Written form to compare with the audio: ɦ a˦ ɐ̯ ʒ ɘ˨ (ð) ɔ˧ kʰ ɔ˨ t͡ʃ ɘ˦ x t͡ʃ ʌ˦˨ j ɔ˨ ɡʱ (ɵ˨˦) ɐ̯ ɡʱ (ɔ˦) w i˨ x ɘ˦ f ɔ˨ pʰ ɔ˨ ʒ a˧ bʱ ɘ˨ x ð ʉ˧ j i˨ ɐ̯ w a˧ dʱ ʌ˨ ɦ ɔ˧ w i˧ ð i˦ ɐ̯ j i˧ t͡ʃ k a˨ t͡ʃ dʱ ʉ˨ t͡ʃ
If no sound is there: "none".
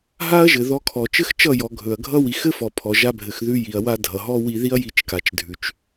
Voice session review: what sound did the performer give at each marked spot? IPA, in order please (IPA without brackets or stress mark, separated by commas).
ð, ɵ˨, ʌ˦